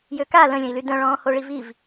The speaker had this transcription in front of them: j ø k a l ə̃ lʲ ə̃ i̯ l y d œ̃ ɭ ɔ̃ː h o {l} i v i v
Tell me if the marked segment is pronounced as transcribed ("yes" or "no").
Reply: no